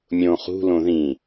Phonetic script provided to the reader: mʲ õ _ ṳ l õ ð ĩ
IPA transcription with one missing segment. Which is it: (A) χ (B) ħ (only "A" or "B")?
A